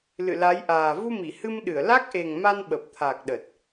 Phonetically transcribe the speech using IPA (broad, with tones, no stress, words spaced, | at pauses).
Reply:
lɨ̰˧˨la˨˦jʔaː˨˩ vu˧mi˧˩hɨ˧mɗɨ˧˩ə̯ la˦˥k̚ʔe˨˩ŋ ma˧nɓə˨˩p̚t̪ʰa˨˩k̚ɗə˨˩t̚